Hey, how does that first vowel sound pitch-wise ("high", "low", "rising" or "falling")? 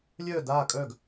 falling